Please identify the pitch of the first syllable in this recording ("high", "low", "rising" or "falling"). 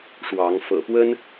rising